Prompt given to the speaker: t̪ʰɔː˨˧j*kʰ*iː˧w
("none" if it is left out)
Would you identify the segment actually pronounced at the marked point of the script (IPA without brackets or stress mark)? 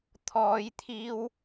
t̪ʰ